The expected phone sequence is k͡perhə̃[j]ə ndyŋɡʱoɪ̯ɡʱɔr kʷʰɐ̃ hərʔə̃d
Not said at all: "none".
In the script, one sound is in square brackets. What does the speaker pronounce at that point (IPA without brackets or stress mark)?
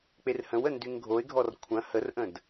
w